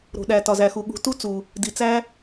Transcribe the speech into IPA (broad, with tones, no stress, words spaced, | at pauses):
ɾo̤˨ɗæ˨ tɒ˨zæ˨xu˨ɠṳ˨˦ tu˦t͡su˨ | di˨t͡sæ˦